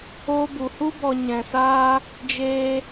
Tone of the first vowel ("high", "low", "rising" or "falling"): high